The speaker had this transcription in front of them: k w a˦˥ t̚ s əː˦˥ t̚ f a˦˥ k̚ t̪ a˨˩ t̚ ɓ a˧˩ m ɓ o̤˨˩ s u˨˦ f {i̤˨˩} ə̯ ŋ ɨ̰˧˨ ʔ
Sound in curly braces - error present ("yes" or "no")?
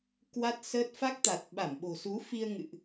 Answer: yes